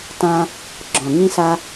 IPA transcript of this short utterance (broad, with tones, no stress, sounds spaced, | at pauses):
t ã˦ | ɡ͡ǁ ɔ̃˨ ŋ ĩ˦ s a˦